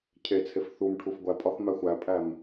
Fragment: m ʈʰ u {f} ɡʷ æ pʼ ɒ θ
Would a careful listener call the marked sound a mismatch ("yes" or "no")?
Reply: no